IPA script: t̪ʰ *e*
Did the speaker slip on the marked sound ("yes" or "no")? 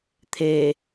no